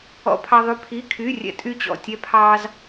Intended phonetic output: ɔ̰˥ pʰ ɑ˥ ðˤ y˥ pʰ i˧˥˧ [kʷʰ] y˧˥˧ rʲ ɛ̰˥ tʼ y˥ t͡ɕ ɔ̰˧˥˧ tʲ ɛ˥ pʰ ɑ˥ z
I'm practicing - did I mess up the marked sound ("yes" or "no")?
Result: yes